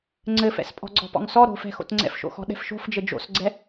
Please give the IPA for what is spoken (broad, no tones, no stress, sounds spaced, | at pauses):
ŋ͡ǀ ɘ f ɛ̰ s pʼ ɔ̤ ɡ͡ǀ ɔ̤ p ɔ̰ ŋ s ɔ ɾ o̤ f ɛ̤ x o̰ t ŋ͡ǀ ɛ̰ f ʃ o̰ x ɔ̤ ɗ ɛ̤ f ʃ o̤ f d͡ʒ ɘ d͡ʒ o̰ s ɡ͡ǀ ɛ